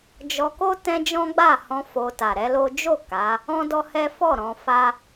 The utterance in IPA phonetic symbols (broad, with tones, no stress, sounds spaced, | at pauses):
d͡ʒ ɔ˧ k o˦ t ɛ̃˦ d͡ʒ ɔ̃˦ ɡ͡b a˦˨ h ɔ̃˧ f o˧ t a˨ ɾ ɛ˨˦ l o˦ d͡ʒ o˦˨ k a˨˦ | ɔ̃˦ d ɔ˦ h ɛ˦ f ɔ˦˨ ɾ ɔ̃˧ f a˦